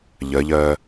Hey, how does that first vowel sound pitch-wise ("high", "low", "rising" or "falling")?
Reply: rising